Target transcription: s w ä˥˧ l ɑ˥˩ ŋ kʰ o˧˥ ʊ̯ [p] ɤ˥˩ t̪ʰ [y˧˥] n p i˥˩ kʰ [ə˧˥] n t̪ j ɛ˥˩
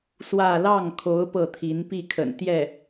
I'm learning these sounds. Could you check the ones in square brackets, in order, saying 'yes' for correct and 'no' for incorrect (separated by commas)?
yes, no, no